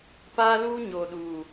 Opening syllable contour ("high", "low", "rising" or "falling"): high